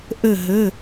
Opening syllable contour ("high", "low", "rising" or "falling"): falling